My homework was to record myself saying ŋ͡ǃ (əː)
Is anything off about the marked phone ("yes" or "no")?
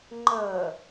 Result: no